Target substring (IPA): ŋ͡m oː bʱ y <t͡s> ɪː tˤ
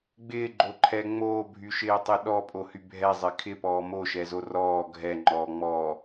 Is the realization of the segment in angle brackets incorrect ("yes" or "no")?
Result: yes